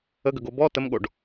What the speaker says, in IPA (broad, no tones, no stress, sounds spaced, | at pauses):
ə ɡ ə ɡ o b ɔ t ə m ɠ o ɖ